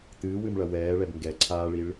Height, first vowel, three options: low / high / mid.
high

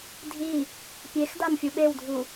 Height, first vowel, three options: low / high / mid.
high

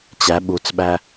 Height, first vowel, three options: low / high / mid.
low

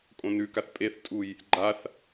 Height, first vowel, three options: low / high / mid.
mid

